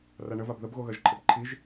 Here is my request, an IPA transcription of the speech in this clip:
raɳəvab ðəbɣoɣɜʒǃʰəb ǃʰiʒ

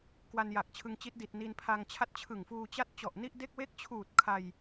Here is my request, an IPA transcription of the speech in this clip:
kwa˧nja˨˩k̚t͡ɕʰɯ˧ŋt͡ɕi˦˥t̚ di˨˩t̚ni˧npʰa˧ŋt͡ɕʰa˥˩t̚ t͡ɕʰɯ˨˩ŋfuː˧t͡ɕa˦˥t̚ t͡ɕɔ˨˩ʔni˥˩ʔde˥˩k̚ we˦˥k̚t͡ɕʰuː˨˩t̚ kʰa˧j

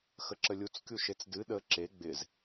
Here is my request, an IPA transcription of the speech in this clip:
xəǁəlʲut͡s kʲuʃet͡sdɨ ɗə ǁe ɡ͡bɪz

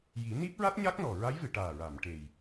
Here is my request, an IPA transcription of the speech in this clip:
ji˨˩˦ni˦˥p̚ɹa˦˥t̚ ɲa˦˥k̚nɔ˨˩ ɹa˧˥jvɨ˨˩˨ ʈaː˨˩ɹa˨˩˨m ʈe˨˩j

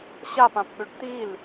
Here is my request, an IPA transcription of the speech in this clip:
ɕapãpɠʏɖ t̪il

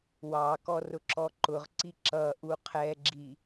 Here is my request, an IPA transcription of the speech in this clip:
wɑkɔ rʊǁɔǃʊʁǀi ǁʌʔu qʰɛɡ͡ǁi

